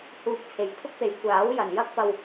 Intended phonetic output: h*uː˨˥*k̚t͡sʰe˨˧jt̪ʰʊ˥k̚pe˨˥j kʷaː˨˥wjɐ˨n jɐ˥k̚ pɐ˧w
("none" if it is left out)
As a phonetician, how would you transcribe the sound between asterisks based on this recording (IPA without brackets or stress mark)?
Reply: uː˧